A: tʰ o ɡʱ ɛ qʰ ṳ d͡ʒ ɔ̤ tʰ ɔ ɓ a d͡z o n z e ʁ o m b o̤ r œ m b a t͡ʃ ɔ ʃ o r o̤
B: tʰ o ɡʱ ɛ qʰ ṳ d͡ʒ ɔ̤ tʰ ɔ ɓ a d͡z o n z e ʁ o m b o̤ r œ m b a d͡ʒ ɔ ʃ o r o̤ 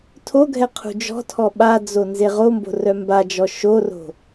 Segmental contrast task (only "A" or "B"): B